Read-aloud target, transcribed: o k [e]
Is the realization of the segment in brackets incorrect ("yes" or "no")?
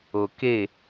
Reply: no